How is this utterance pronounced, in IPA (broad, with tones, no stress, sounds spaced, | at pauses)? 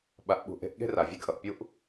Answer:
ɓ a˧ ʔ ɓ ṳ˧ ʔ e̤˧ ʔ ɠ e̤˥ r a˩ vʲ e˧ ɡ ʔ ʌ˩ ʔ pʲ u˥ ʔ